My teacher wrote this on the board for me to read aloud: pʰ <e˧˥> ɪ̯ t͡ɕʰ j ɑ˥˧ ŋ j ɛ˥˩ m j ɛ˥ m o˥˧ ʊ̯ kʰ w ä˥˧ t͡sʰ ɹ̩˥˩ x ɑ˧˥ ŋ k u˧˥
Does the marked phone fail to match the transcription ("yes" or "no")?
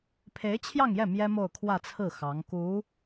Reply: no